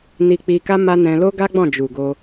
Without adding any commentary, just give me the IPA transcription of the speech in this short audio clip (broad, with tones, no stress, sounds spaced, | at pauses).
n i˧ k͡p i˧ k a˦ m a˦ n ɛ̃˧ l o˦ ɡ a˦ ɡ͡b ɔ̃˦˨ d͡ʒ u˨ ɡ o˧